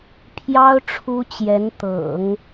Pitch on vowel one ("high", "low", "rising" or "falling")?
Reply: high